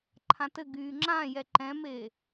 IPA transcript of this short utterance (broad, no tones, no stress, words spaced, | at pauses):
ǃʰãtɘ ɡyːŋ͡ǁãjɛ ǃɛ̃me